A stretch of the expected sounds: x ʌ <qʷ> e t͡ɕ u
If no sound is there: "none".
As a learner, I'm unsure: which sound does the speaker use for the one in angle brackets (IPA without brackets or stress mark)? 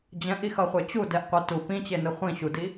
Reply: χʷ